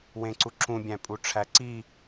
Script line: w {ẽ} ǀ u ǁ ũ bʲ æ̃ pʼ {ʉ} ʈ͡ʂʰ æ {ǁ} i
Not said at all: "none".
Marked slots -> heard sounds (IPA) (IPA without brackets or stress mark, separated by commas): ẽ, u, ǀ